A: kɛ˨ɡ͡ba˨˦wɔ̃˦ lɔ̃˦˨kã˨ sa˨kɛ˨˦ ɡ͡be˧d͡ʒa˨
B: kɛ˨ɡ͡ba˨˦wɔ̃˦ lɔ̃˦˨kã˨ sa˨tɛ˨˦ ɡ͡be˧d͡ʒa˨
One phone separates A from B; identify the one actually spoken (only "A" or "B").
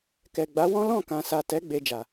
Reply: B